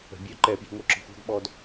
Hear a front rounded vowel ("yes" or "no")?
yes